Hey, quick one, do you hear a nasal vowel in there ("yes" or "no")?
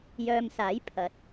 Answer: no